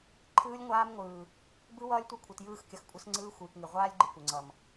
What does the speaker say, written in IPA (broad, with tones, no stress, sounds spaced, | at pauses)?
ǃʰ ɯː˦ lʲ ŋʷ aː˦ m ŋʷ ɯː˨ | b ɯ˦ w ʌː˦ lʲ tʷ ʌ˦ kʷʰ ɨ˨ t j ɯː˦˨ x kʲ ʌ˨ x kʷʼ ʌ˦ s ŋ͡ǀ ɯː˦ xʷ ɯː˨ k ŋ ɨ˨ ʁʷ aː˦ lʲ ɡ͡ǃ ɨ˨ kʷ ə˨ ŋ͡ǀ ʌ˨ m